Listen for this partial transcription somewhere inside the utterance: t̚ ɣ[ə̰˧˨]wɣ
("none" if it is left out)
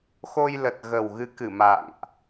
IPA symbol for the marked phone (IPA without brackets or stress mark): ə˨˩